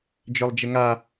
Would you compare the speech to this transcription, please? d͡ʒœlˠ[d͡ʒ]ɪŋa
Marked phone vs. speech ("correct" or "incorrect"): correct